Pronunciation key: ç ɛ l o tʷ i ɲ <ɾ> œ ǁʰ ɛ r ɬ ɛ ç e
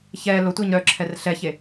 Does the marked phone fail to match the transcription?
no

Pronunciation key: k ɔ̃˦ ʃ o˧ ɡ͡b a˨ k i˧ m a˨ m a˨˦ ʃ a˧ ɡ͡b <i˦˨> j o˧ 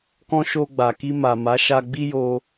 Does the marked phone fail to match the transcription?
yes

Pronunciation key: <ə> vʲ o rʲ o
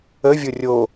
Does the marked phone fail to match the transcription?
no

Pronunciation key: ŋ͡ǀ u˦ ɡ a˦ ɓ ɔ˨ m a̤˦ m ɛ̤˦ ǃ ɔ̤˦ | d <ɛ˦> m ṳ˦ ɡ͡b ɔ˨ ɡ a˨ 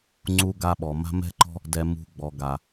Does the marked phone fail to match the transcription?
no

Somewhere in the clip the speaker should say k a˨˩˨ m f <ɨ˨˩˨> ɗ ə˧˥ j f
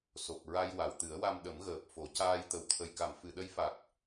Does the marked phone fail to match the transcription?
no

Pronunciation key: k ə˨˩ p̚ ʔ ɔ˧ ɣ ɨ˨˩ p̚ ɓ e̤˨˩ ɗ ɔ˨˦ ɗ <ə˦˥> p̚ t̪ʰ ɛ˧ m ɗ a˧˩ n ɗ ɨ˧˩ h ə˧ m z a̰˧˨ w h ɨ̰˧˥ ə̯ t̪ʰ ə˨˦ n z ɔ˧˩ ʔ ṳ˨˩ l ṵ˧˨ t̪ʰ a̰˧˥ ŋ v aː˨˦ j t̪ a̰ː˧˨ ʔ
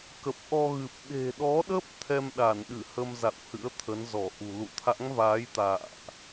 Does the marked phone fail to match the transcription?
no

